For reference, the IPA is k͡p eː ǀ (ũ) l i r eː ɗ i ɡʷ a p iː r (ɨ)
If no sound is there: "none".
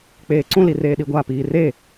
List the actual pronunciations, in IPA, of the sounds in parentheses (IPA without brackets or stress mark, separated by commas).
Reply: ũ, e